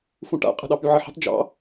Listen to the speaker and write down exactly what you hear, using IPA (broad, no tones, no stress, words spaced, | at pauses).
fũʈa̰qʼə̤ɗɑ pyʕəħə̤tˤ d͡ʒɑ̰